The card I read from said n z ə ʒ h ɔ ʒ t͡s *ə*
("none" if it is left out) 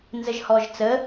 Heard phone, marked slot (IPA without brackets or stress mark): ə